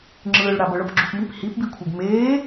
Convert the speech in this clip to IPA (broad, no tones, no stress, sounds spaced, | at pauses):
ŋ͡ǁ ɯː ɭ ɽ a b ɤ ɭ ɤ p ɡ͡ǁ u p m i p h i p b i kʷʰ e ɡ m eː